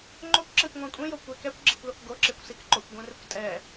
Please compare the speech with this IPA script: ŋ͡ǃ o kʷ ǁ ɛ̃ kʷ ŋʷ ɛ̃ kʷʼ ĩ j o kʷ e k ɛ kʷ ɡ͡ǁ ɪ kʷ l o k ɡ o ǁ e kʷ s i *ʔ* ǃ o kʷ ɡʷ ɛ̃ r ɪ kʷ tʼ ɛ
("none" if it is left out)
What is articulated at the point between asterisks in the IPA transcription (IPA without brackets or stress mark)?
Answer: k